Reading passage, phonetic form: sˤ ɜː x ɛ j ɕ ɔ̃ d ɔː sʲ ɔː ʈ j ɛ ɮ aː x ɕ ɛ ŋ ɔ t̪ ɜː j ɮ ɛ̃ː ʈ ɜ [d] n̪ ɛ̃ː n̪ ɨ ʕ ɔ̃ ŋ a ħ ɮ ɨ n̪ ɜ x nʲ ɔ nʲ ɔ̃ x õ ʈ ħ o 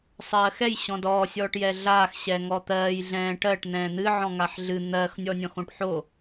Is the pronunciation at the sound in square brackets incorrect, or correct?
incorrect: ʈ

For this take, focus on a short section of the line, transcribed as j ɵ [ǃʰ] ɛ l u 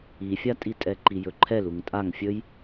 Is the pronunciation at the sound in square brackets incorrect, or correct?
correct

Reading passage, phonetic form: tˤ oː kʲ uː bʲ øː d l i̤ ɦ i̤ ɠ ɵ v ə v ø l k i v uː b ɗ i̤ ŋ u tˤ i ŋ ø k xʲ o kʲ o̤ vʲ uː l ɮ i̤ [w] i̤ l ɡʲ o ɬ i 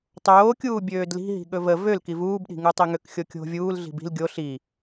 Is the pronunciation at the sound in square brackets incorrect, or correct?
incorrect: b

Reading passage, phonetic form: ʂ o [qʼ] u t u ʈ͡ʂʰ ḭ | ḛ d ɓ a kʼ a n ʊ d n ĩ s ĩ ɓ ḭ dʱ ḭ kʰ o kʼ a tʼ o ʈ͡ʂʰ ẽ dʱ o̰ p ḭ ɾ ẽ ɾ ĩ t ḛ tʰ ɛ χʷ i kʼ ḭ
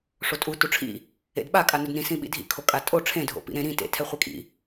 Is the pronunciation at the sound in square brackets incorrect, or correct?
incorrect: tʼ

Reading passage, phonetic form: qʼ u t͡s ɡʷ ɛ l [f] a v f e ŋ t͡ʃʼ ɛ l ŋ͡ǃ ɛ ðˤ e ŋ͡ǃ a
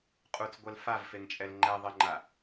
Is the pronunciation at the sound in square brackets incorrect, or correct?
correct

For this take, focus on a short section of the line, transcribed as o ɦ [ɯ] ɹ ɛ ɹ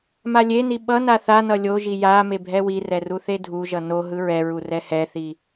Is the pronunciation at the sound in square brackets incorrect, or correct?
correct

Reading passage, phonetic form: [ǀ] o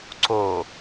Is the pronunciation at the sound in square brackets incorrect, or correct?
correct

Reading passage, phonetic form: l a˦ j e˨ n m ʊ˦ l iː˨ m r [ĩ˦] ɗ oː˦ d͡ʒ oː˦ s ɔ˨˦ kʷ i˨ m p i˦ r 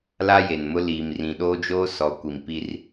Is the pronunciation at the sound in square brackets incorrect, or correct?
incorrect: ĩ˨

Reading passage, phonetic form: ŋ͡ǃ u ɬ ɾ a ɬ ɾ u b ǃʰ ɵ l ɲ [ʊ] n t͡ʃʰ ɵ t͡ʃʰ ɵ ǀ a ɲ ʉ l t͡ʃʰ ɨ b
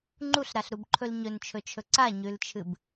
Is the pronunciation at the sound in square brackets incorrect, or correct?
incorrect: ɵ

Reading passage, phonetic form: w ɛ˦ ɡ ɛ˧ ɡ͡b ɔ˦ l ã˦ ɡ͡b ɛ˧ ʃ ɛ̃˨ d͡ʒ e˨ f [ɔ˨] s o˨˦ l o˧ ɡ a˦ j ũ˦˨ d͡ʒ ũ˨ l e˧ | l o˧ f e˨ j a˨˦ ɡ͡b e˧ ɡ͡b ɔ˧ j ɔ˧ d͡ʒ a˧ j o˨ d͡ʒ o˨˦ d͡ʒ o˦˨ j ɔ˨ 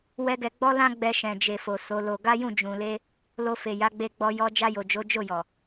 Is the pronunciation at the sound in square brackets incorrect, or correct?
incorrect: o˨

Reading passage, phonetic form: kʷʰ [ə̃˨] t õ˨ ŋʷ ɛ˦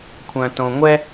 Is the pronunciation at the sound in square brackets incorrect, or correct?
incorrect: œ̃˨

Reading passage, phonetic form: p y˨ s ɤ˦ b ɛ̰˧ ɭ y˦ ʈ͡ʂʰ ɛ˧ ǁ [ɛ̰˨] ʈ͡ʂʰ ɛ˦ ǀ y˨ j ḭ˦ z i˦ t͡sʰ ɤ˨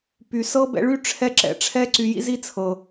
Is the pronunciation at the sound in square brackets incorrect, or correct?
correct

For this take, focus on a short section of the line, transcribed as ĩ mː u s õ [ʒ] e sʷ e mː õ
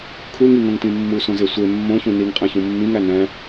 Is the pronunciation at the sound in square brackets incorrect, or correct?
incorrect: z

